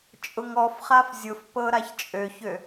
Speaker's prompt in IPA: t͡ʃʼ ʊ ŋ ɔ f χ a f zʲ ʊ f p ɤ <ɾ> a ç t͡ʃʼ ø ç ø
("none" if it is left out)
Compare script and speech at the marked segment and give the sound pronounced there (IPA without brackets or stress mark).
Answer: ɾ